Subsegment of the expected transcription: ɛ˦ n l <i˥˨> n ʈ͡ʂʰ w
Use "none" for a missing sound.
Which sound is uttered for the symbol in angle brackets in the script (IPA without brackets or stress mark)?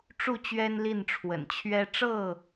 i˥˨